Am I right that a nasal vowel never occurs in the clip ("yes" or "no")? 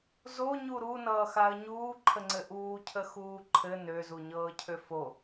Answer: yes